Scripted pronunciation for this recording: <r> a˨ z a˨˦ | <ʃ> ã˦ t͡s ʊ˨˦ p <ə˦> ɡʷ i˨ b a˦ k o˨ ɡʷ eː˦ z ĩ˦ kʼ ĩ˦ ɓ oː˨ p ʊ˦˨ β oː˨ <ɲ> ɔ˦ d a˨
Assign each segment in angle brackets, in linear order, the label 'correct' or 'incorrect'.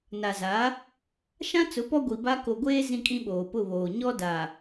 incorrect, correct, incorrect, correct

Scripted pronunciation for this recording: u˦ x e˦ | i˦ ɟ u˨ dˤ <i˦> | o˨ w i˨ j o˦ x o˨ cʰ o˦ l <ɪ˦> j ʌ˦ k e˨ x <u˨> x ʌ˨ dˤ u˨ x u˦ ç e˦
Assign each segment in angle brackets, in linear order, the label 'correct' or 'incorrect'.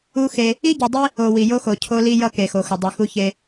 correct, incorrect, incorrect

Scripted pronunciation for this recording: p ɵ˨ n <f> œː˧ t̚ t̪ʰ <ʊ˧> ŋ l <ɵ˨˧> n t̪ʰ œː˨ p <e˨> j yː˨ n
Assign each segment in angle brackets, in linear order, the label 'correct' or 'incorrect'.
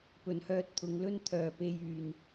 incorrect, incorrect, incorrect, incorrect

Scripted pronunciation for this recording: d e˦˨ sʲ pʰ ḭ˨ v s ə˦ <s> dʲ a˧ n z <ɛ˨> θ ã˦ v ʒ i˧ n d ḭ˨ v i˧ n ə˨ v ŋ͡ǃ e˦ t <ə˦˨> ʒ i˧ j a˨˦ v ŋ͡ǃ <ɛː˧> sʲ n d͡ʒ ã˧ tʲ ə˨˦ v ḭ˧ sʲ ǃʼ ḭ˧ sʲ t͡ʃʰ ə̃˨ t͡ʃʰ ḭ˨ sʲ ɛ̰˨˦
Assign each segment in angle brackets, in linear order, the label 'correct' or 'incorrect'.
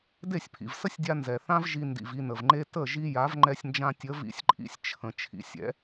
incorrect, correct, correct, incorrect

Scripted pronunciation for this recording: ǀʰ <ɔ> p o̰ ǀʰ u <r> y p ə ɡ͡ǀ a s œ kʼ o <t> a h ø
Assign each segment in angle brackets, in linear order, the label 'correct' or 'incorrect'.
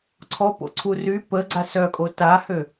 correct, correct, correct

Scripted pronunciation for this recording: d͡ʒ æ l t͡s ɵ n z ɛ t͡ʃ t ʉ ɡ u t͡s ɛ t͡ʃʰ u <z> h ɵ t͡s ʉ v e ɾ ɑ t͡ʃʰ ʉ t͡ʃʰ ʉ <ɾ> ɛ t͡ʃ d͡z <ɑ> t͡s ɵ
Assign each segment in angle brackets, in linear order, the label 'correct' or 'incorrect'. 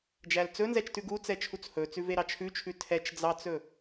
incorrect, incorrect, correct

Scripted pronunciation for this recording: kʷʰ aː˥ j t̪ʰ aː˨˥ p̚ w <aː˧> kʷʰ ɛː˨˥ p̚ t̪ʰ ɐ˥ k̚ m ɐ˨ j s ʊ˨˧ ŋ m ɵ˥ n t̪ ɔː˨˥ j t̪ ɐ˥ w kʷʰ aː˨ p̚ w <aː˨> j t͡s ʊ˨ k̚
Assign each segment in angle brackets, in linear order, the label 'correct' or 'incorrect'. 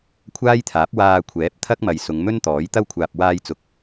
correct, incorrect

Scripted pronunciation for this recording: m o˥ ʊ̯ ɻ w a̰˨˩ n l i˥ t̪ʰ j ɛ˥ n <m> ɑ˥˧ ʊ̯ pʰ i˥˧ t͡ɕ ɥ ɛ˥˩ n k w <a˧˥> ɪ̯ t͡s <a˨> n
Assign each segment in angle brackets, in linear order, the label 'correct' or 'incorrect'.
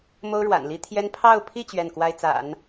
incorrect, incorrect, incorrect

